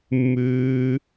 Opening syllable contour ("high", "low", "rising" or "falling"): high